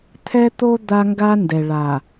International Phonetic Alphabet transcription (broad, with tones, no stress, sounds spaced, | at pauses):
t̪ʰ ɛ˦ t̪ o˦ d̪ a˦ ŋ ɡ a˦ n d ɛ˨ ɭ a˨